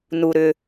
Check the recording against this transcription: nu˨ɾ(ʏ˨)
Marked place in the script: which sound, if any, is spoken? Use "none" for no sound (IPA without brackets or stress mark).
ʏ˨